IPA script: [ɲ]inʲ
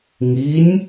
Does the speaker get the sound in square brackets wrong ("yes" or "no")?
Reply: yes